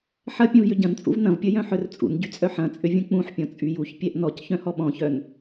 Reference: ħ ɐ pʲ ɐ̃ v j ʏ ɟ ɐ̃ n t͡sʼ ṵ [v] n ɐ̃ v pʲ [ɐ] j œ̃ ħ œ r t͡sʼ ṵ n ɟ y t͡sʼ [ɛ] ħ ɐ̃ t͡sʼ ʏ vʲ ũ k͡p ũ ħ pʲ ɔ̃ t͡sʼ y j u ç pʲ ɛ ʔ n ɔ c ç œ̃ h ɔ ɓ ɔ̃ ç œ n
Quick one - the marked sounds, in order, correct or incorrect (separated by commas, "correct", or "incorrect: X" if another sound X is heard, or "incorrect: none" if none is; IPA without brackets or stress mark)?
correct, correct, incorrect: œ